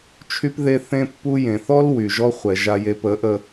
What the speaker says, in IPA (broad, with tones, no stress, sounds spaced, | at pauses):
t͡ʃʰ y˦ p ð e˦ θ ẽ˦ pː u˦ j ẽ˨ θ ɔ˦ l w y˨ ʒ ɔ˦ χʷ ɛ˨ ʒ a˨ j e˨ p ə˨˦ ʔ ə˦